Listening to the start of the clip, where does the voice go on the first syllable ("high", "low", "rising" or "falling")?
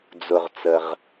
low